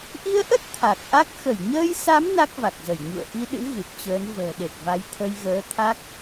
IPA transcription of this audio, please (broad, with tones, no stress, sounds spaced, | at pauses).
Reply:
ʔ i˧ ə̯ ʔ ə˦˥ t̚ t̪ʰ a˨˩ k̚ ʔ a˦˥ k̚ x ə˧˩ j ɲ əː˧ j s a˨˦ m n a˦˥ k̚ v a˨˩ k̚ z ə˧˩ j ɲ ṵ˧˨ ə̯ ʔ i˧ ɗ ɨ̰˧˥ ɣ ɨ˨˩ p̚ t͡ɕ əː˨˦ n v ə̤ː˨˩ ɗ e˨˩ t̚ v a˨˦ j t̪ʰ ə˧ j ɣ əː˨˦ t̪ʰ a˦˥ k̚